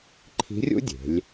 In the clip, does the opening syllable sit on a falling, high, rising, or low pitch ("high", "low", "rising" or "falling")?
rising